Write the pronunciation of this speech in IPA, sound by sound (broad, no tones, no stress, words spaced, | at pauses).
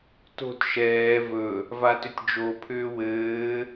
to̤t ʃɛː vɵ | vatʏtʲd͡ʒo pʰʏːwɘː